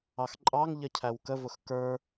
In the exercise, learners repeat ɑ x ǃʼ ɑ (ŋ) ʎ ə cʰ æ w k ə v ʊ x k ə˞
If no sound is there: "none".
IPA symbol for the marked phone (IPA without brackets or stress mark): ŋ